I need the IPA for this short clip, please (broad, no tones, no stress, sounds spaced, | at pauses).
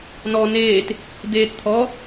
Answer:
n ɔ n eː t | d̪ eː t t̪ʰ ɔ